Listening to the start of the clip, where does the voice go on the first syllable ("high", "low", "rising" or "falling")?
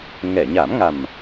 low